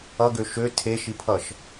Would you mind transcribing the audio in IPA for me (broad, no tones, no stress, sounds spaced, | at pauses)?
ʌ ɡ ø ʃ ø tʰ e ʃ i pʰ ʌ ʃ